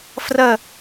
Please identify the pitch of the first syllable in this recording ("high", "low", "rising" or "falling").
falling